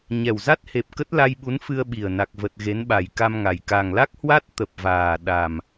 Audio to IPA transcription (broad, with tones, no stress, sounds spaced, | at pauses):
ɲ ɛ˨˩ w z a˦˥ t̚ h e˨˩ p̚ k ə˦˥ t̚ l a˧ j ɓ u˨˦ n f ɨ˧ ə̯ ɓ i˨˩ ə̯ n a˨˩ k̚ v ə˨˩ t̚ ɣ e˨˦ n ɓ a˨˩ j k a˧ m ŋ a˨˩ j k a˨˩ ŋ l a˦˥ k̚ h w a˦˥ t̚ t̪ ə˨˩ p̚ v aː˨˩ ɗ a˨˩ m